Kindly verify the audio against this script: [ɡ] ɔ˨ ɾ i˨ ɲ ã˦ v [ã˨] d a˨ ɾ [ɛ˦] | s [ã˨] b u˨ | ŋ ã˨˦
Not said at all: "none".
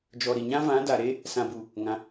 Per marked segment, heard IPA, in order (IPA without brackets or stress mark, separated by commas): d͡ʒ, ã˨˦, e˦, ã˨